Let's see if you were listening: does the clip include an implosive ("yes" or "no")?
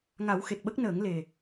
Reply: yes